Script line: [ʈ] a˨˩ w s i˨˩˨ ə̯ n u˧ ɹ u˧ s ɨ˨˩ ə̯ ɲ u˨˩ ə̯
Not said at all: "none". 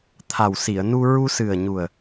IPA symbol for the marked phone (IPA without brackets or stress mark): t̪ʰ